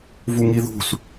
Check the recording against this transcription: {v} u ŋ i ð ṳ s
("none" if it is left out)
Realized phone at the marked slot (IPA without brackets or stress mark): v